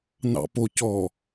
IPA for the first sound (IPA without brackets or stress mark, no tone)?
n